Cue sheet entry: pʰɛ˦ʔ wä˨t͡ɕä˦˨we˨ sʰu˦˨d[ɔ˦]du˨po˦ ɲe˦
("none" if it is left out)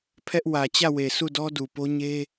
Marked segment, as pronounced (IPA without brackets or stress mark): ɔ˦